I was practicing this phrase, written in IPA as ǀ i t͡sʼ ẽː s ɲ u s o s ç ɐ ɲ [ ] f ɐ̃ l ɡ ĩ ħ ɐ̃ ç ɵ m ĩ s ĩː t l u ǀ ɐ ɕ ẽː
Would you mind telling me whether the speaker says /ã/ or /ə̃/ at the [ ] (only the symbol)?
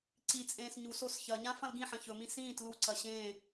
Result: ã